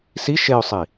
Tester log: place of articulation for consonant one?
alveolar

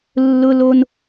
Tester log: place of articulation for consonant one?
alveolar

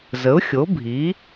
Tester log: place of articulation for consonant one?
alveolar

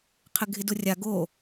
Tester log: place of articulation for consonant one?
uvular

